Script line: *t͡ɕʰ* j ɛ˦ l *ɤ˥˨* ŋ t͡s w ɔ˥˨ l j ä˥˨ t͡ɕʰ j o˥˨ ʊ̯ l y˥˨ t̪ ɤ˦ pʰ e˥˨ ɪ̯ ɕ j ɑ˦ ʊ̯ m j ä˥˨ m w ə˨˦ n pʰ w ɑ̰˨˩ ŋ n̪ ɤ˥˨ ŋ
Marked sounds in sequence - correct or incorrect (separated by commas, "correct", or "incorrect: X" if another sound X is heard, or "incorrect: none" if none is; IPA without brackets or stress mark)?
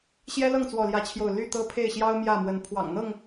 incorrect: ɕ, correct